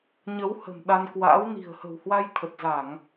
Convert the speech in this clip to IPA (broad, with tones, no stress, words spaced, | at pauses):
ɲə˨˦whə̤˨˩m ɗa˧nkwa̰ː˧˥w ni̤˨˩ə̯hə̤˨˩whwa˧j t̪ʰə˨˩t̚za˧˩˨ŋ